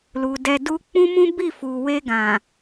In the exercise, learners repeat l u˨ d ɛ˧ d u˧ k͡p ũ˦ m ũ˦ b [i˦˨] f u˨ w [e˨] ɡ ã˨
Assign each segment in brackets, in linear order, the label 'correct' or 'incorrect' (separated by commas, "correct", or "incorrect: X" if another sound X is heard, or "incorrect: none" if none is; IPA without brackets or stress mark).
correct, incorrect: e˧